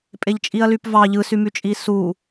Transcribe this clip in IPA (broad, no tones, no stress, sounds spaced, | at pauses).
pʼ e ʎ t͡ʃʼ i ɐ̯ l y p v ɑ ʎ ɯ s y m y t͡ʃʼ i s u